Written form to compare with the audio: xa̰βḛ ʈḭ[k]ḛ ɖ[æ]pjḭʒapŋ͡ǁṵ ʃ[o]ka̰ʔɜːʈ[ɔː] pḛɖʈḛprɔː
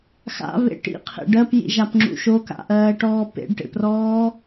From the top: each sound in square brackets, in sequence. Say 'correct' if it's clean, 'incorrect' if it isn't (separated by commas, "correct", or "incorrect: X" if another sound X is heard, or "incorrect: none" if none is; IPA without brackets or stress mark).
incorrect: qʰ, incorrect: ɜ, correct, correct